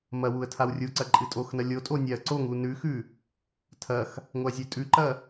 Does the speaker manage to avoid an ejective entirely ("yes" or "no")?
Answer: no